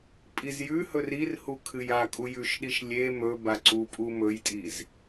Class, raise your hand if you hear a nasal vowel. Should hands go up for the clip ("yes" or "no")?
no